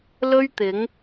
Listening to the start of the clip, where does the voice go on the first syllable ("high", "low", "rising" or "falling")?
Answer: high